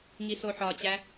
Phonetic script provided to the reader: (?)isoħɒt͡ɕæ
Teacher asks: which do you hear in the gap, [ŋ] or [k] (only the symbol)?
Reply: ŋ